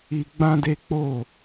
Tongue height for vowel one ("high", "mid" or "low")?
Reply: high